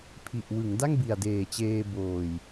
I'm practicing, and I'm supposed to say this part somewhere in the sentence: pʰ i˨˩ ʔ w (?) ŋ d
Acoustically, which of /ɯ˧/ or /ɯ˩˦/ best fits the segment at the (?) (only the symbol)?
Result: ɯ˩˦